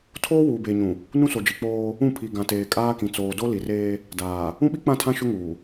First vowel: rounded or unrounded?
rounded